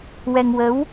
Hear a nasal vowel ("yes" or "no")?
no